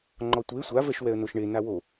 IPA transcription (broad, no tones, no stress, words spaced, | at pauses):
ŋ͡ǃɔtʷe sʷavɛʃ wɛə̯noʃɳe nawo